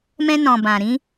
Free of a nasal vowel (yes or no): no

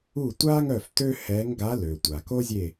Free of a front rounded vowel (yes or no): no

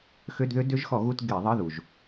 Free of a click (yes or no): yes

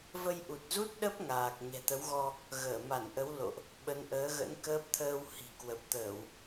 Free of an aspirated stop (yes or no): no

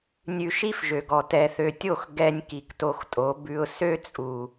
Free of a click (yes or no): yes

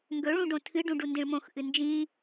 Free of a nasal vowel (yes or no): no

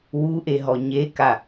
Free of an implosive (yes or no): yes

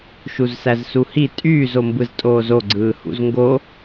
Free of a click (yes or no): no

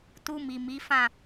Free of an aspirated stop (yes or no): yes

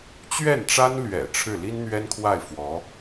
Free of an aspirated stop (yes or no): no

